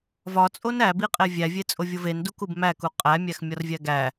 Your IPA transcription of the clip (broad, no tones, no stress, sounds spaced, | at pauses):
v ɒ t͡sʼ o n æ b i qʼ e vʲ æ vʲ e t͡sʼ o vʲ o v e n d u k u b m æ k u qʼ æ mʲ æ x mʲ ɒ r vʲ æ ɡ æ